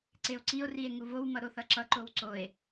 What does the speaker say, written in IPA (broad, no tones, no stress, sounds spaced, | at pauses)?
ǀ e o̯ ǀ i o̯ r i e̯ ŋ u v o w m ʌ ɾ o θ ʌ ǁ ʌ ǃ o w ǀ o e̯